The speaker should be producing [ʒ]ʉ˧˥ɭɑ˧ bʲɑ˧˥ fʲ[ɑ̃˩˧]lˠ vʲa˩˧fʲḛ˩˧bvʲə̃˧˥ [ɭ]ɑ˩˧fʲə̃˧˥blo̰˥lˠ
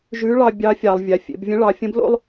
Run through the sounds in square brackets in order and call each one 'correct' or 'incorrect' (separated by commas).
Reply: correct, incorrect, correct